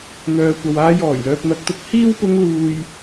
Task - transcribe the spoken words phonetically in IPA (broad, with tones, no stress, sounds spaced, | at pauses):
n̪ œː˨ kʷ ɐ˨ w aː˧ j ɔː˨˩ j l œː˨ p̚ n̪ ɐ˨ k̚ t̪ ʊ˨˥ k̚ h iː˥ w p ʊ˧ ŋ l uː˨ j